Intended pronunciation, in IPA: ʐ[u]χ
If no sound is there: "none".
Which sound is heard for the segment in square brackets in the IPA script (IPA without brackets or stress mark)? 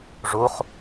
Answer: u